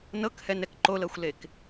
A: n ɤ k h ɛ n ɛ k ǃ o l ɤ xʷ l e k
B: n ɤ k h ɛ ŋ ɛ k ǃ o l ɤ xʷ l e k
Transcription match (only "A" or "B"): A